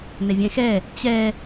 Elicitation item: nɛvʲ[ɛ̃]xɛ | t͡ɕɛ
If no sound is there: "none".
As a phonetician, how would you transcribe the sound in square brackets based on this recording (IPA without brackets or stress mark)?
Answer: ɛ̃